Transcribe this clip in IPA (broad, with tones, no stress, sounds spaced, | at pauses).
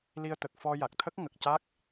l i˧ ə̯ t̪ ə˨˩ k̚ f ɔ˧ j a˨˩ k̚ t̪ʰ ə˦˥ k̚ ŋ ə˨˩ k̚ c a˦˥ k̚